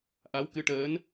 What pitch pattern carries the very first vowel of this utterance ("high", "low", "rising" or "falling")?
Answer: rising